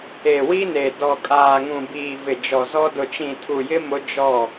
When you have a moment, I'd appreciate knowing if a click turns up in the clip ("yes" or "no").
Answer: no